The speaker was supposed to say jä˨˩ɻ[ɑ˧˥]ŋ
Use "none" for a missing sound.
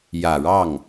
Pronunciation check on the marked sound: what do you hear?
ɑ˥˩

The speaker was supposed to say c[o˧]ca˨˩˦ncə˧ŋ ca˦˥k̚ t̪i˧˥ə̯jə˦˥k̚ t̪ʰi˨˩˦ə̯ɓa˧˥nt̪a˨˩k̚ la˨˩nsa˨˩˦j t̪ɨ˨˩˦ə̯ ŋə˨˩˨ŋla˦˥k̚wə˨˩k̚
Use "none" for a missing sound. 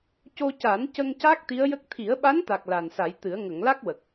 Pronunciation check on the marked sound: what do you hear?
o˧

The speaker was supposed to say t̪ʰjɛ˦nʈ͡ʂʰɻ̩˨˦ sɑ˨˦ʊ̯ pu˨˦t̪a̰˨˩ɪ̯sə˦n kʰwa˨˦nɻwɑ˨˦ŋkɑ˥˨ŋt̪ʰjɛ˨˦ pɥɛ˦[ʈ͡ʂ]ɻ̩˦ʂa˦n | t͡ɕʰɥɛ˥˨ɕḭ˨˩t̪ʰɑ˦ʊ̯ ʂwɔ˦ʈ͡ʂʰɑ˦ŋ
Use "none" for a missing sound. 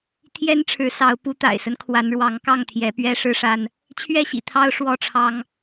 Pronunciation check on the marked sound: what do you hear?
ʂ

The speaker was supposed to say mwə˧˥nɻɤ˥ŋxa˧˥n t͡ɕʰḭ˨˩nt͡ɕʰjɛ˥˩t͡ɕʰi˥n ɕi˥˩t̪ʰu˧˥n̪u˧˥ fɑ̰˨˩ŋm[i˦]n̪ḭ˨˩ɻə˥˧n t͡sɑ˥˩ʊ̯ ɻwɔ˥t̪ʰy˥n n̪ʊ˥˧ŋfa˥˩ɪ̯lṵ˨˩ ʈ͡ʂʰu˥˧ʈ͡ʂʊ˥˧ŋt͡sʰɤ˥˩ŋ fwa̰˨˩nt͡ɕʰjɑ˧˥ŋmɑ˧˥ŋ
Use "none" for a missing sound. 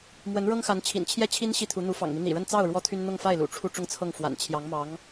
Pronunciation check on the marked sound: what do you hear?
i˦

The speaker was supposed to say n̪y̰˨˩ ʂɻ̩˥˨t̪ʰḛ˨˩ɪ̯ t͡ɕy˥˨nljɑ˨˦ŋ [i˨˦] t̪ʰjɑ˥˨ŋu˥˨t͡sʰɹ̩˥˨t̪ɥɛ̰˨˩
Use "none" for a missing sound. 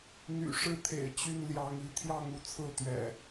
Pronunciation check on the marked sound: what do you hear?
i˨˦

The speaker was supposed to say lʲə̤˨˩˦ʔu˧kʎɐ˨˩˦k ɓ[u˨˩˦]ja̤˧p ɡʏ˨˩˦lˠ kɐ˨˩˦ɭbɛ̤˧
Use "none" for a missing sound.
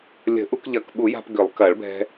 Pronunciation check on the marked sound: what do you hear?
u˨˩˦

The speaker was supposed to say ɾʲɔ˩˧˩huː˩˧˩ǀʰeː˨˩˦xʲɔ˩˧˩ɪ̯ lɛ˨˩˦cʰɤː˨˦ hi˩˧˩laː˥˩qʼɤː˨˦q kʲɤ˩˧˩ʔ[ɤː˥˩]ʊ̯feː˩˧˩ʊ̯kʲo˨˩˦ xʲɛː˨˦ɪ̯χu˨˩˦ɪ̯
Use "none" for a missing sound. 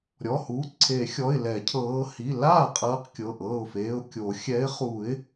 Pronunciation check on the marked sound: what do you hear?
ɤː˥˩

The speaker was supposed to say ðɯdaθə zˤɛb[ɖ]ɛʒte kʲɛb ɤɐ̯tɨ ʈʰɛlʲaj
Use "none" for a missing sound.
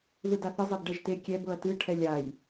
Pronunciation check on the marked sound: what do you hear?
ɖ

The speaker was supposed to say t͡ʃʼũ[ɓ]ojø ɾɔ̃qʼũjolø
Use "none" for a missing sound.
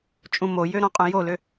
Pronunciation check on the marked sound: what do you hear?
m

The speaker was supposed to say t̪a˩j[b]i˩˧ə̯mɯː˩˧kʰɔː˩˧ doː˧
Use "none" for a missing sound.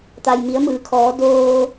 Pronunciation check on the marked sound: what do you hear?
m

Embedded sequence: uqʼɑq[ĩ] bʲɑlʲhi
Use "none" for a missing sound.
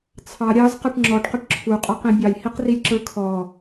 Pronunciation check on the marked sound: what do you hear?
ĩ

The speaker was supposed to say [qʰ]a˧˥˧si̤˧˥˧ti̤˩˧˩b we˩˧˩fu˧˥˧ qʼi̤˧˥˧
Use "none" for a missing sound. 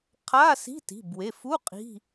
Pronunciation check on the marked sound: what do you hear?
qʰ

